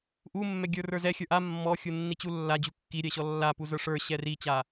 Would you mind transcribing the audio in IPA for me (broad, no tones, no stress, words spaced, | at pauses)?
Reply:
ʔumːɛ ɡʲə˞rə˞zɛ xʲə˞ʔa mːɔxʲunːit͡ɕu lːad͡ʑu kːiɾʲɛɕɔ lːa puzə˞ʂə˞ ɕɛrit͡ɕa